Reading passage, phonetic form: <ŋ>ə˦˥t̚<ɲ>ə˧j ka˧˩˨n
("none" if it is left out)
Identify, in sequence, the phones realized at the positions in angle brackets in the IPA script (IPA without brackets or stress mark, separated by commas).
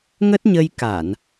ŋ, ɲ